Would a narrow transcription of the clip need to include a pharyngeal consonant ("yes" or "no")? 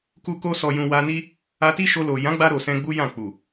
no